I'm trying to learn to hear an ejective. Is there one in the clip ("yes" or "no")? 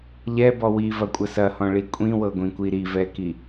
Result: yes